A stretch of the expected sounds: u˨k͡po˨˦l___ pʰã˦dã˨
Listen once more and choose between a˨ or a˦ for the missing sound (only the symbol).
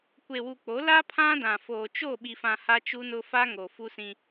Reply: a˦